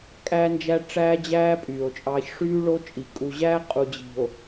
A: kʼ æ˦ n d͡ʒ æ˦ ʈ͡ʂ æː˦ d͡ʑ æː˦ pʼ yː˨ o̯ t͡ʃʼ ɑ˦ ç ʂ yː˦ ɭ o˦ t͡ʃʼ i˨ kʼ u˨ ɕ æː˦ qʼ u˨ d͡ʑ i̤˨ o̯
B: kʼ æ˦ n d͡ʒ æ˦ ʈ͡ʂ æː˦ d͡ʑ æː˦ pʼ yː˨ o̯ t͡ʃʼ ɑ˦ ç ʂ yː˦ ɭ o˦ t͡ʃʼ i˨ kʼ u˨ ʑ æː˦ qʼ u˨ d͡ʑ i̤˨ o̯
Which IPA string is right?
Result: B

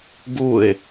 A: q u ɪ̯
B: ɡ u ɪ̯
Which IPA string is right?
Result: B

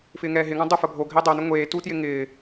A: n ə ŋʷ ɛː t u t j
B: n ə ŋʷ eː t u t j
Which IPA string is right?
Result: B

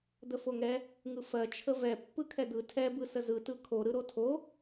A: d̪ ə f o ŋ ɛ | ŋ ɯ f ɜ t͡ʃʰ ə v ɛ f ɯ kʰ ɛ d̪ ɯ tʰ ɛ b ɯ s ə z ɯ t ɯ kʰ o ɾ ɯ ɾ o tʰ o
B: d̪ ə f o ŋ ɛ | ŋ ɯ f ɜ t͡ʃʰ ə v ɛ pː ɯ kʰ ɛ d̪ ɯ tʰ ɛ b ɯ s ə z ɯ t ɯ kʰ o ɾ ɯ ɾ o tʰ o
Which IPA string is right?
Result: B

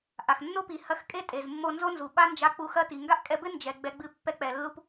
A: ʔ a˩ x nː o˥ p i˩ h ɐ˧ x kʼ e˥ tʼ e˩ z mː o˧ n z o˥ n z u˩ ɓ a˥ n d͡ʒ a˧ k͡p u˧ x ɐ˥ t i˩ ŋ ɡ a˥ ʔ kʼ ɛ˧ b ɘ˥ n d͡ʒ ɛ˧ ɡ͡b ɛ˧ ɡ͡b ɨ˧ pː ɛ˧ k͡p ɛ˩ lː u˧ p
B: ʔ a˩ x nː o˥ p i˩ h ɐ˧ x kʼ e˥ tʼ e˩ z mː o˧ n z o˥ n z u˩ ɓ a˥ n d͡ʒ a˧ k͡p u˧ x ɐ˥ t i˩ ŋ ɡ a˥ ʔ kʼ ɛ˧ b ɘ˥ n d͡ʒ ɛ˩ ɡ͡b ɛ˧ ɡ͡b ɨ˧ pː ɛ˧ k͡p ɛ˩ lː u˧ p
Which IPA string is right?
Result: B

